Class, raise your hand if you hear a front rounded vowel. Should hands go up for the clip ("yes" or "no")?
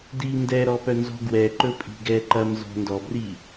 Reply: yes